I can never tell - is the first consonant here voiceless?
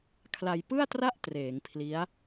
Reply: yes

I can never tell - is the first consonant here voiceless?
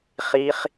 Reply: yes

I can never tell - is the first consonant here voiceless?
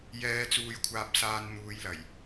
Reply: no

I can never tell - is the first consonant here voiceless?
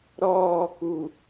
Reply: no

